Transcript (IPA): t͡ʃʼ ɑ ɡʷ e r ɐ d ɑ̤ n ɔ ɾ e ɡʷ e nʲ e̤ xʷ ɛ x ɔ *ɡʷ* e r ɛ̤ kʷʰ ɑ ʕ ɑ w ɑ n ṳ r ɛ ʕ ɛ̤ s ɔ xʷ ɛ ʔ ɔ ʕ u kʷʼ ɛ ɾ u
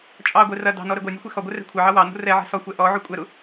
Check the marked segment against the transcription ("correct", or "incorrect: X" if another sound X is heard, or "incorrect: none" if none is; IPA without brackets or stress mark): correct